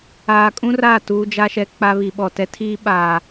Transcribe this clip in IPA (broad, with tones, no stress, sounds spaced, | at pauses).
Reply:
aː˨ kʼ ũ˦ r aː˦˨ t uː˦ d͡ʒ a˦ ʃ ɛ˦ k͡p a˦ β i˨ ɓ ɔ˨ t ɛ˦ tʰ iː˦ ɓ aː˨